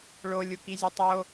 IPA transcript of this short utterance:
ɭ o lʲ u k i zʲ ø tˤ o

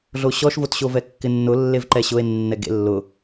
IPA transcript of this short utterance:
ɮ o ɕ ɔ ʃ v o t ɕ o v ɛ kː ɪ nː ʊ lː e v ǃ ɛ ɕ ʊ e̯ nː ɛ ɡ ḛ lː ʊ

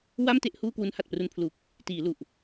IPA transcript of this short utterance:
w a˥˩ m t e˥˩ ʔ h uː˥˩ k w u˦˥ n h a˨˩ t̚ p r u˧ n pʰ l u˨˩ k̚ | t iː˩˦ l u˨˩ ʔ

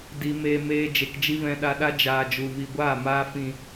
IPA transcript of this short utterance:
d i˧ m eː˧ m eː˧ d͡ʒ e˨ k d͡ʒ i˦ v ɛ̃˧ ɗ a˧ ɗ a˦ d͡ʒ aː˧ d͡ʒ u˨ v i˨ ɡʷ aː˦˨ m aː˧ f ĩ˨

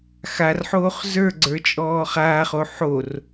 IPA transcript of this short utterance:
x a r ħ oː χ z ə˞ ɡ͡ǀ ə˞ t͡ʃʼ ɔː χ aː χ o ħ o r

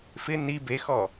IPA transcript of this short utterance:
f ɪ n i b e x ɔ

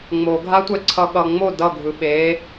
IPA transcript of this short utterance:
ŋ͡m o ɡʱ a tʷ ɛ ǀʰ ʌ ɠ ʌ ŋ͡m o d ʌ ɡʱ ɯ ɓ e

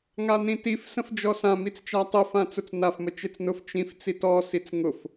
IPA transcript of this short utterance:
ŋ a n ĩ t i f s ə̃ f d͡ʒ ɔ s ã m i t͡s t͡ʃ a tˤ ʊ f ã t͡s ʊ t͡s n a f m ə t͡ʃ e t͡s n ʊ f t͡ʃ ĩ f t͡s i t ɔ s i t͡s ŋ ʊ f

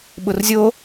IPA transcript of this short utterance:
ɓ ʊ r zʲ o

